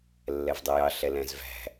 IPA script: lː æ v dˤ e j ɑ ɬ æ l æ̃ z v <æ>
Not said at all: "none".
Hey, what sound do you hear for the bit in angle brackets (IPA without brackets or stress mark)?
æ̤